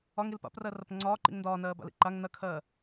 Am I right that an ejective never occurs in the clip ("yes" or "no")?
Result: yes